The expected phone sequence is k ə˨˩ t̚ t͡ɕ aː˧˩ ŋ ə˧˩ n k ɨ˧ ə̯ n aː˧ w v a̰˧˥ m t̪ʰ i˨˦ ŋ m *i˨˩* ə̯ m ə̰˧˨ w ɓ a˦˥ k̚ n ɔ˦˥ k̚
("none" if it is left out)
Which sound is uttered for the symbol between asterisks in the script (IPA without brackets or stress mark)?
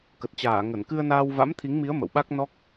i˨˦